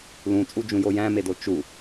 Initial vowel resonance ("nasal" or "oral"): nasal